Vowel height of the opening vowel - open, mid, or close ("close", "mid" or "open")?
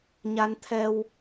open